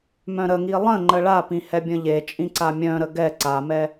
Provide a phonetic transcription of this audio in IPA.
mœ̃ɾəŋi lˠə̃ ŋ͡ǃəɭapĩ hɛbʲə̃ʎet͡ʃʼĩ ǀamʲœ̃ɾə ɡɛ ǀamɛ

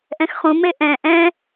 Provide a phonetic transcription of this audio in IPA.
ʔɛ̃xχũme ʔɛ̃ ʔɛ̃

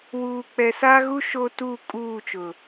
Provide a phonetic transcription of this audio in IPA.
wuː˨k͡pɛ˨sa˦ɣu˦ ʃo˦tu˦˨ kʼuː˦˨t͡ʃʊ˨

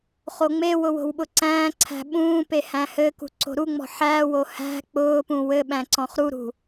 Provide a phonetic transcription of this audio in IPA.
χoŋ͡mewʊ wo̤wɓʊǀæ̃ːǀʰæ̤ ɓũː pehæ̃hɘkṳ ǀo̤ɾuŋ͡mɔ̤ ħæwo hæ̤ k͡pʊːpũ wɘɓæ̃ ǀɔ̃χɾuɾṳ

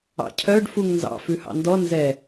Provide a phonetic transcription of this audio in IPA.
ɑ̰cʰœɖ fuŋnzɑ̰ fʉhɑ̰ndɔ nzɛ

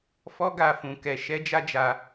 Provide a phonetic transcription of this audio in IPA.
fɔ˦ɡa˧ fũ˧ kɛ˧ ʃɛ˦d͡ʒa˦d͡ʒa˧

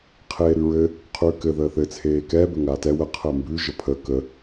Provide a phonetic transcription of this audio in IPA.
qʰeːɾʉɹɘ | qʰʉːkɘ ðəːθɘ t͡sʰeːkɛː bɘŋaːtɛ wə qʰəːmbʉ ʒəpʰə kə

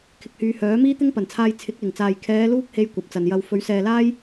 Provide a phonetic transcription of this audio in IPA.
kʰɪ˨k̚hyː˨˧hœː˨˥miː˥ t̪ɪ˥ŋpɐ˨˩nt͡sʰaː˧j t͡sʰɪ˨˥k̚lɪ˨˩ŋt͡saː˨j kʰɛː˨˧ luː˥k̚he˧j kʷɐ˨p̚t͡sɐ˨njɐ˧w fɵ˨˥ɥsɛː˨laː˥j

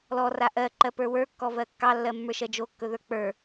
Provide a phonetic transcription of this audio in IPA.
lɔra ʔɜǃɜpə˞ wə˞kːɔvɜ kːɑlːɜmːə˞ʃɜ d͡ʒokːɵðə˞ k͡pə˞

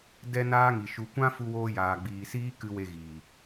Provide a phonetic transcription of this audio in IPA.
dɛ˦naː˦ŋi˨ ʃu˨kʷã˦ fu˧woː˧jaː˨ ɡ͡biː˨siː˦kɨ˧ we˧ɣiː˨

